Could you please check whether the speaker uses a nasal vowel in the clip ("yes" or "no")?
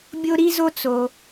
no